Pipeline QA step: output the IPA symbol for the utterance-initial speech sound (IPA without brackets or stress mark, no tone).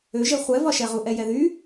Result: ø